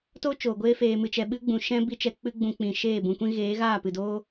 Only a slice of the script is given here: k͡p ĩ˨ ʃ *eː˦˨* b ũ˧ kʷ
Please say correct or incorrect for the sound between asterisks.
correct